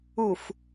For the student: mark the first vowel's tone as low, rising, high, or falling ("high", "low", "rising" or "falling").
low